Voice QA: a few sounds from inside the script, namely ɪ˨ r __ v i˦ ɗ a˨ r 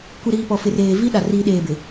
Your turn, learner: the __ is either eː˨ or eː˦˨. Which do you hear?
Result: eː˨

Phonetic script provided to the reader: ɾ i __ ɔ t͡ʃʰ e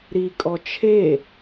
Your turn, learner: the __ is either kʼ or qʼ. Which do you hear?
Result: kʼ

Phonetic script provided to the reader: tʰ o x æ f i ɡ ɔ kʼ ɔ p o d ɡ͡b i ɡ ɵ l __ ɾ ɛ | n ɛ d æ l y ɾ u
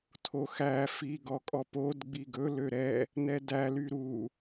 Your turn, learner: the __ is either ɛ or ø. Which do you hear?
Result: ø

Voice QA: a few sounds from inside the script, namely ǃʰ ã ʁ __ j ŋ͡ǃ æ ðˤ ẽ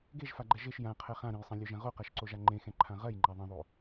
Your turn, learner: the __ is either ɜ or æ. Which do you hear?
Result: ɜ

